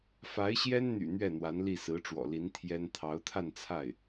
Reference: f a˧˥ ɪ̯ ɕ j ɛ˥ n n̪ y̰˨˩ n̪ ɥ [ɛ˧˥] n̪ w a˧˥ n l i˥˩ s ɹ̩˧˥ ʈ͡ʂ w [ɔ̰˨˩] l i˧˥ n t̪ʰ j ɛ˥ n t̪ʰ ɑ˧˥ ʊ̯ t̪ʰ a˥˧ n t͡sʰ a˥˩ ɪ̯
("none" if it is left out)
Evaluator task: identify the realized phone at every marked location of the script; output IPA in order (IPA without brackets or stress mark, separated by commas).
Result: ɛ˥˩, ɔ̰˨˩